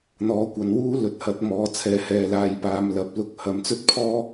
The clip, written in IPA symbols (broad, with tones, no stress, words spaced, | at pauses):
n̪ɔː˨˥kʷɐ˨nwuː˥ lɵ˨t̚hɐ˨˥t̚ mɔː˨˥t͡sʰɛː˨˥ hɛː˨laː˨jpaː˨˧m lɐ˨˥p̚lʊ˧k̚ hɐ˨˥mt͡sɵ˥t̚ pʰɔː˥